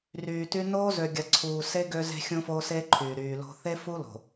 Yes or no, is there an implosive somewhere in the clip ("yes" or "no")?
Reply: no